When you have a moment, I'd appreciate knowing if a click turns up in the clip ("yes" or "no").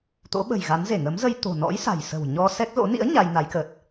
no